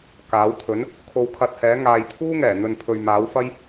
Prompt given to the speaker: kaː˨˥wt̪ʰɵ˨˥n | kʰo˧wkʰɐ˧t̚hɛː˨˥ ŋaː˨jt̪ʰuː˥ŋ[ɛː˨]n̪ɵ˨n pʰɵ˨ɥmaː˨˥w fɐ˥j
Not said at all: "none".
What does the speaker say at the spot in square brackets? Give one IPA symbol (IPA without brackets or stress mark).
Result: ɛː˨˩